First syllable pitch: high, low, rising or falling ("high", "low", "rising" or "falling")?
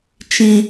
high